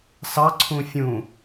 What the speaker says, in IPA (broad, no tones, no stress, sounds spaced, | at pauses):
s ɑ ǀʰ ũ fʲ ũ